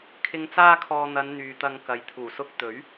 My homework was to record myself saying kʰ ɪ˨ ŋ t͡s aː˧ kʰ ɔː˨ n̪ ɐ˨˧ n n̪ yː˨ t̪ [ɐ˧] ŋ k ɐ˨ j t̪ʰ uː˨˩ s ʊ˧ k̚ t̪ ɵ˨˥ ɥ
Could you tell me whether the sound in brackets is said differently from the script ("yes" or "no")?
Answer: no